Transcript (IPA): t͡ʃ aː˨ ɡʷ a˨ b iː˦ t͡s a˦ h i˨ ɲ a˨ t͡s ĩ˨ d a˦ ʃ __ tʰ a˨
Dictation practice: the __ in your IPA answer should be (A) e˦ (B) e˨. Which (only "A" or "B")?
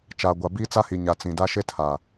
A